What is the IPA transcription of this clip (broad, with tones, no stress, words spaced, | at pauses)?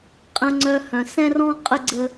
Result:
qʼə̃˨ŋ͡ǀœ˨hœ̃˩ sɛ̃˥rɔ̃˥ qʼə˥ɡ͡ǀə˦